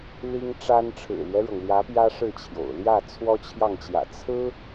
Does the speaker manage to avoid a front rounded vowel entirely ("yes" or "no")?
yes